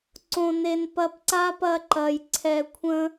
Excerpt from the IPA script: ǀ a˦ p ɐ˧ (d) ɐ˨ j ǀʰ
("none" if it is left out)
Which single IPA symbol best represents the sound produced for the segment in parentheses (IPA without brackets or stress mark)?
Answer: ǃ